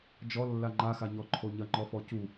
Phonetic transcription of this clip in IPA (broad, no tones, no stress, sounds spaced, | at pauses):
d͡ʒ ɔ lː a ŋ͡ǃ a x a ɲ ɔ ǃʰ o ɲ ɐ ŋ͡ǃ ɔ f ɔ c u